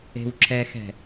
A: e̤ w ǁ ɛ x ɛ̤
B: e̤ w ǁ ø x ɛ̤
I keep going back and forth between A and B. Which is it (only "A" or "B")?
A